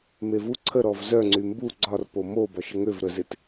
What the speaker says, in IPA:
m e v u ǀʰ ə ɾ ɔ v z œ ŋ͡ǀ y m b u ɡ͡ǀ ɒ r p o m o b ɒ ʃ ə ŋ ø v ɾ œ z e t

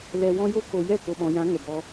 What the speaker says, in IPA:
l ɛ˨ w ɔ̃˧ j o˦ k o˨ j ɛ˦˨ k o˨ ɓ ɔ̃˨ j ã˨˦ ŋ ə˨ b ɔ˧

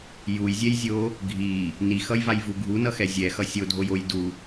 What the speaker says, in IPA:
j u j zʲ ɛ j zʲ o | ɡʱ i | n i x ʌ j v a j v u ɡʱ u n ʌ x ɛ zʲ ɛ x ʌ sʲ o dʱ o j o j d u

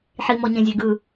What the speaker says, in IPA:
ħ i m ɔ ɲ ẽ zʲ e ɡ ɯ

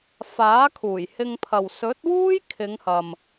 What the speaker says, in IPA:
f aː˨˥ kʰ uː˨˩ j h ɪ˧ ŋ pʰ ɐ˨ w s ɵ˨˥ t̚ w uː˥ j kʰ ɪ˨˧ ŋ h ɐ˨ m

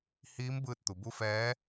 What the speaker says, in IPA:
h iː˧˥ m b ɯː˧ t̚ t̪ u˩ b u˧˥ f ɛː˧˥

